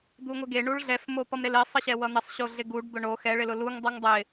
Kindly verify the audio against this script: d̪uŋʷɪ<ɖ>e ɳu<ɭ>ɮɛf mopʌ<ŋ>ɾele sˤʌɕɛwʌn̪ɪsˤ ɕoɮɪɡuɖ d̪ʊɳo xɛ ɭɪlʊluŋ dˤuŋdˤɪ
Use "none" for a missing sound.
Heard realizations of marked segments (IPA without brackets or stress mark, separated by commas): ɡ, ɭ, m